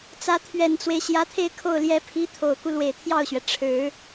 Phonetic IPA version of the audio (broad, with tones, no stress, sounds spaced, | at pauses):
t͡s ä˧˥ t̪ʰ ɥ ɛ˨˩ n t͡s w e˦ ɪ̯ ɕ j ä˧˥ t̪ʰ e˥˧ ɪ̯ kʰ o˥˩ ʊ̯ l j ɛ˧˥ pʰ i˧˥ t̪ʰ o˨˩ ʊ̯ k u˦ l w e˨˩ ɪ̯ t̪ʰ j ɑ˥˩ ʊ̯ ɕ ɥ ɛ˩ ʈ͡ʂʰ ɻ̩˨˩˦